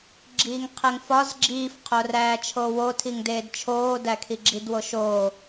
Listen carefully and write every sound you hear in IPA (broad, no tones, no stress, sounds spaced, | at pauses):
ɡ͡ǁ iː ŋ qʰ e ŋ f ɒ z ɡ͡ǁ iː f qʰ o r æː t͡ʃʰ oː w o tʰ i ŋ d eː d t͡ʃʰ oː d æ kʰ i ɡ͡ǁ i d w o ʃ oː